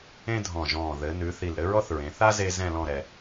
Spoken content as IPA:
ẽ˥ dʱ ɔ̃˧˩ ʒ ɔ̃ː˧˩ ð ɘ˩˧ n ʉ˩˧ θ i˧˩ l ɾ ɘ˥ ɹ ɔ˥ θ ɹ ẽ˩˧ θ a˥ z e˧ z ɛ̃˥˧ l ɔ̃˥˧ ɾ ɛ˧

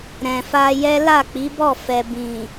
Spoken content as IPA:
ɾ ɛ̃˨ f a˧ j ɛ˦ l a˦˨ k͡p i˨˦ b ɔ˦˨ f ɛ˨ b ĩ˨

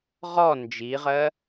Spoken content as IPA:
ʁ ɔ n d͡ʒ i ʁ ɜ

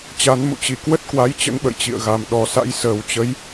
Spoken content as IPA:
t͡ɕ a˨˦ n m ṵ˧˨ t͡ɕ i˧˩ k w ə˦˥ t̚ k w a˨˦ j t͡ɕ ə̰˧˥ n ɓ ə̰˧˨ j t͡ɕ ḭ˧˨ ə̯ ɣ a˨˩ m ɗ ɔ˨˩ s a̰˧˥ j s əː˨˩ w t͡ɕ ə˨˦ j

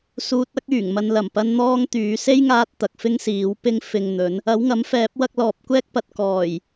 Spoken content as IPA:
s uː˧ t̚ ɐ˥ k̚ yː˨˩ ŋ m ɐ˨ n l ɐ˨˩ m p ɐ˧ n n̪ ɔː˥ ŋ t̪ yː˨˥ s e˥ j ŋ aː˧ t̚ t̪ ɐ˨ k̚ f ɪ˥ ŋ s iː˨˥ w p ɪ˥ ŋ f ɪ˧ ŋ n̪ ɵ˨˥ n | ɐ˨˥ w ŋ ɐ˨˥ m f ɛː˨˥ p̚ w ɐ˧ k̚ l ɔː˨ p̚ kʷ ɛː˥ k̚ p ɐ˨ t̚ k ɔː˨˩ j

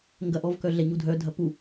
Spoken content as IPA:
ŋ ɡ ɐ ʔ ɔ v k œ ɮ ɛ ɲ u dʱ œ dʱ ɐ p u

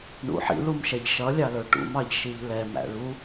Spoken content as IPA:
ɳ ṵ ħ ḭ l u m ʃ ɛ ʎ ʃ ʌ lʲ ɑ l ə˞ ʈ ṵ m ɑ ʎ ʃ i ʎ l ɛ m æ̰ ɭ u

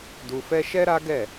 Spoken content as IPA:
d u˧ f ɛ˦ ʃ ɛ˦ ɾ a˦ ɡ ɛ˦˨

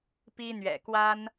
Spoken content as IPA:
p i˦ n̪ ɥ ɛ̰˨˩ k w a˦ n

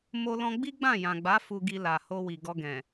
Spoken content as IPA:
m o˧ l ɔ̃˧ ɡ͡b i˦ ɡ͡b ã˦˨ j ã˨ ɡ͡b a˨˦ f u˧ ɡ i˧ l a˨ h o˧ w i˨ ɡ ɔ˧ ɡ ɛ̃˨

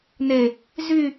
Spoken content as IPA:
n e | z y

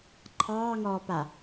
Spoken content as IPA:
ǃʰ ɑː ŋ ɔː p a

